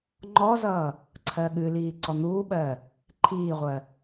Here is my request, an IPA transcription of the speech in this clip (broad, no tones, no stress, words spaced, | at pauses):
ŋ͡ǃɔzʌː | ǀʰɜɠɨliː ǀɔn̪uːɓɜː | ǃʰiːʁʷɜ